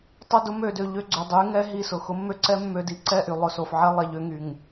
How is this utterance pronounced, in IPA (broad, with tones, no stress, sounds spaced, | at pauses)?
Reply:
tˤ ʊ˦˨ d ʊ˦ m ø˨ d ø˨ ʎ ø˦˨ ɡ͡ǀ ø˨ dˤ y˨˦ ŋ ɛ˦ ɦ i˦˨ s ʊ˨ x ʊ˦ mː ø˦ ǀ ɛ˦ mː ø˨ d i˨ ǀ ɛ˦˨ ʔ y˨ lˠ ʊ˨ s o˨ f ʕ ɛ˦ lˠ ɛ˨ ʎ ø˦ ŋ y˨ ŋ